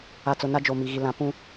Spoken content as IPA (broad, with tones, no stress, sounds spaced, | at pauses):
a˨ t͡s ʊ˨ n a˦ d͡ʒ o˨ m i˨ ɣ i˨ l ã˨˦ p ũ˦